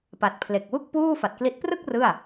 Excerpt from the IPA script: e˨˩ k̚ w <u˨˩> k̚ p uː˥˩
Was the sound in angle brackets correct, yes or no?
no